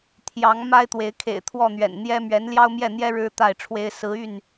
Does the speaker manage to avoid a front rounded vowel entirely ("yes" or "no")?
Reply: no